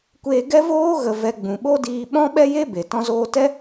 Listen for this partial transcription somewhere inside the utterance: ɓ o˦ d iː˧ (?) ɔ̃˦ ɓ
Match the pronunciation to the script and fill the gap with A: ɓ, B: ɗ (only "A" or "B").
A